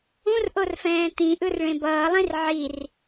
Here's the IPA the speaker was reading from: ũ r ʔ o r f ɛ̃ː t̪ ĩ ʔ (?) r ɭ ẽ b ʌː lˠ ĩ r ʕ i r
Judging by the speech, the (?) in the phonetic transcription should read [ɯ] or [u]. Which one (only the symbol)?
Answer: ɯ